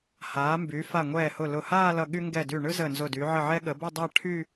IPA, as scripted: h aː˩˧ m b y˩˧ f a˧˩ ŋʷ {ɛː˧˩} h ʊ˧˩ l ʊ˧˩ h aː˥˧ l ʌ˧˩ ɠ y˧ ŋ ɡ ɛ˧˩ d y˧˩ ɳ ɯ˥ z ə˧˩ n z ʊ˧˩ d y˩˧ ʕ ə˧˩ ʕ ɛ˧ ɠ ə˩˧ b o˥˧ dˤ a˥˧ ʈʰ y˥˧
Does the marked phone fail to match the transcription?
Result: no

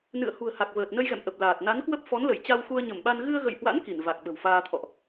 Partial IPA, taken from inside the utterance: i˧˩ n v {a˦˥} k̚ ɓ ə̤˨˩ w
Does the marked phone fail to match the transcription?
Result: yes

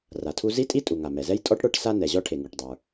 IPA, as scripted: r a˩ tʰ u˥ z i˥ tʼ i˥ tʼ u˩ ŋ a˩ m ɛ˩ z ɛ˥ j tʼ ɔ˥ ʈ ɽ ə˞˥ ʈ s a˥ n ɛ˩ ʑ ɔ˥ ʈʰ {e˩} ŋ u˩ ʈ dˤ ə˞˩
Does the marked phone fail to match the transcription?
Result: no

